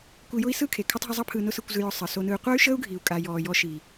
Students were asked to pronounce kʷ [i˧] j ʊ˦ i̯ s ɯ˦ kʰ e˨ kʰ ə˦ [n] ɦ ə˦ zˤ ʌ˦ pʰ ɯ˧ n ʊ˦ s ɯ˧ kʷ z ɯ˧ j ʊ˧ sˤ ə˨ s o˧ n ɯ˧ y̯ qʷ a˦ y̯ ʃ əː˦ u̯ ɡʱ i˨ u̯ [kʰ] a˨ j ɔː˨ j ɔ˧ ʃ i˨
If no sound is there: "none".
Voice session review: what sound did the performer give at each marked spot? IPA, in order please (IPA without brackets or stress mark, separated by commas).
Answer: i˧, tˤ, kʼ